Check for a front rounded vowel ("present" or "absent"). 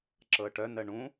present